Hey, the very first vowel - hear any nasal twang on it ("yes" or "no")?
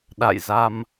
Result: no